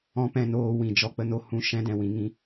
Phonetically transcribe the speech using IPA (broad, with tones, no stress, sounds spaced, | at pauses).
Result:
ɔ̃˦ p ɛ̃˧ n oː˧ w ĩ˨ d͡ʒ ɔ˧ k͡p ə˦ n o˦ h ũ˦ ʃ ɛ̃˦ d ɛ̃˨ w ĩ˧ ŋ ĩ˦